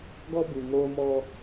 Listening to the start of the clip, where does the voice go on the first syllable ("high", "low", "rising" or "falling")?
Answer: high